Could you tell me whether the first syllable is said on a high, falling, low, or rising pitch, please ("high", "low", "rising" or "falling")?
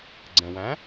low